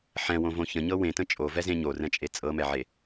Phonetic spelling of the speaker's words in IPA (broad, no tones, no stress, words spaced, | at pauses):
ħɛ̃wõvõ çə̃ɲɤ wẽtə̃ t͡ʃʼovɛzẽ ɲorɛ̃t͡ʃʼe t͡sʼɤmɛʕe